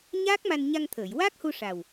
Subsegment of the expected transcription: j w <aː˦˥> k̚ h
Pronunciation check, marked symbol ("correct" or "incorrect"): correct